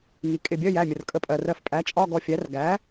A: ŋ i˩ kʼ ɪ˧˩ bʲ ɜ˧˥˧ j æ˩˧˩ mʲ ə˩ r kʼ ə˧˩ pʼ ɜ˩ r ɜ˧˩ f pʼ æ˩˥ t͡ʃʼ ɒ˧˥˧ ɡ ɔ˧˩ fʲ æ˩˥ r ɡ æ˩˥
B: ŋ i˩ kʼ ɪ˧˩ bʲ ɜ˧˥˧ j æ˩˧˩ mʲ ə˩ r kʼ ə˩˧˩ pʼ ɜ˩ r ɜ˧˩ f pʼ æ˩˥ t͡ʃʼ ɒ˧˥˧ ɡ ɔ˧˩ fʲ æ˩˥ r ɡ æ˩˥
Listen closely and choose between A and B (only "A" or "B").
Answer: A